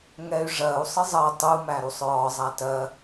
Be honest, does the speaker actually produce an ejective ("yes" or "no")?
no